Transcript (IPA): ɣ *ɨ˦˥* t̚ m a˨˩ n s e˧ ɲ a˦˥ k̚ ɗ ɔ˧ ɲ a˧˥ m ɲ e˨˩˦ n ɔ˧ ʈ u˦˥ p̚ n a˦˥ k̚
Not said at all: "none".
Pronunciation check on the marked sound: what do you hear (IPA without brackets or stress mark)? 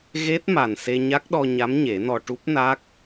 e˦˥